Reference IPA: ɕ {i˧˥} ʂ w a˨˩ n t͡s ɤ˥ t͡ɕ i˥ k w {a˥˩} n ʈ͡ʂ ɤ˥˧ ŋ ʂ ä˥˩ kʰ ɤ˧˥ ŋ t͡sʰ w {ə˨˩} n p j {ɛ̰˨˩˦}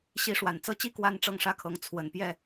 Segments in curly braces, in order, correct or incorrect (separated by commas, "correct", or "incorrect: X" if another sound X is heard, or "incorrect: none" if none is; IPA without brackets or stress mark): correct, incorrect: a˥, correct, incorrect: ɛ˥˩